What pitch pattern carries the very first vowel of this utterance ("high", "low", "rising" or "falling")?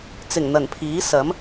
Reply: low